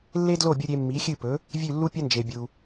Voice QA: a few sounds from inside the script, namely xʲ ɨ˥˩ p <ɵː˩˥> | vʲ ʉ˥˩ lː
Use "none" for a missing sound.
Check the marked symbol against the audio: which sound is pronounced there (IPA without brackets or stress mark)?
ɵ˩˥